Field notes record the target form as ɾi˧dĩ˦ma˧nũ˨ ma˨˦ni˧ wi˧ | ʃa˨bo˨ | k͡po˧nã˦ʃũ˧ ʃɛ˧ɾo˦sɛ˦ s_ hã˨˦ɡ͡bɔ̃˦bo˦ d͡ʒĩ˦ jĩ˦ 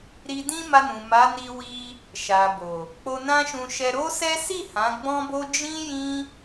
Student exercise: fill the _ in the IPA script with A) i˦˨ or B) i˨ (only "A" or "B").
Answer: A